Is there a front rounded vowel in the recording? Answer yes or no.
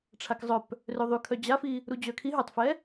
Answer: yes